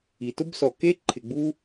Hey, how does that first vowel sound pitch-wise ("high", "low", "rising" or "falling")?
low